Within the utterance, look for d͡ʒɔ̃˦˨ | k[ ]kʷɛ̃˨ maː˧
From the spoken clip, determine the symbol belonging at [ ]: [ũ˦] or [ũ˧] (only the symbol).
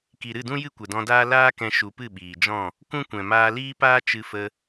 ũ˦